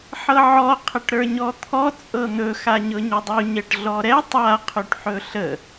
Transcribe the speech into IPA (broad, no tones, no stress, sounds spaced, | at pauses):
ħ ɤ ʕ ɔ qʰ ə ʈ ɾ ə˞ ɲ ɔ t̪ʰ ɔ t͡sʼ ɤ n̪ ɵ x a ɲ ɤ ɲ ɵ dˤ u ɲ ɛ ʈ ɮ ɔ ɾ ɛ tˤ a qʰ y ʈ ħ ɵ ɬ ə